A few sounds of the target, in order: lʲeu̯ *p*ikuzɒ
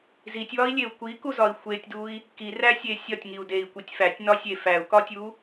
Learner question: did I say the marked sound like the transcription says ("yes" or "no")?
no